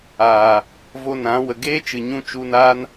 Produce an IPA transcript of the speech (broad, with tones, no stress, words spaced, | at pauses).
aː˨ | vo˧nã˨˦ wə˨ɡeː˦t͡ʃɨ˨ɲũ˧ t͡ʃu˧naː˦n